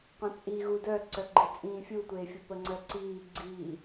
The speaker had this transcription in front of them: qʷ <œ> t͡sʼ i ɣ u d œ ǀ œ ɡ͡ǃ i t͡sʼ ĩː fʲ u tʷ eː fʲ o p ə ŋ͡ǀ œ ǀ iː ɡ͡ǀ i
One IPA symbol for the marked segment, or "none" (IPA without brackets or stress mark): œ̃